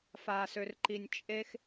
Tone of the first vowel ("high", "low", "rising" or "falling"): low